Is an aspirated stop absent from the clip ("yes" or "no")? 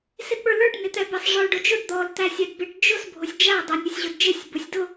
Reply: yes